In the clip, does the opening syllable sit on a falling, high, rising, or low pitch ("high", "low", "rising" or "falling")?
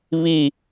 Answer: falling